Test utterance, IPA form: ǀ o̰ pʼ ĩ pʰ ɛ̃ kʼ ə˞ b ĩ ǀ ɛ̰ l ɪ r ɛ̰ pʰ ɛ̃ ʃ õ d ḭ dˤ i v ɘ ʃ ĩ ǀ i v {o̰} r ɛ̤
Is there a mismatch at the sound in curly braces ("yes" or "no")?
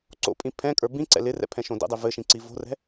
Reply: yes